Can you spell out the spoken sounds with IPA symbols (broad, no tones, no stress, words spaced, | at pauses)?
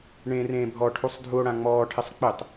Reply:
ɳẽːrẽːbʱɔʈʰusˤ dʱuo̯ɽãŋ͡mɔːʈʰɪsˤ k͡pɪtˤ